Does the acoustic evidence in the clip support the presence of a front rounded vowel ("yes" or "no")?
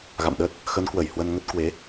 no